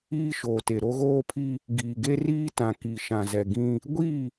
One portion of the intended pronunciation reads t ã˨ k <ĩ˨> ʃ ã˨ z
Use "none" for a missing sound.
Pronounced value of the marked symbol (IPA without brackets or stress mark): i˨